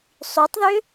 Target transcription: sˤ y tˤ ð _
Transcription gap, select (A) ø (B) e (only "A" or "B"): A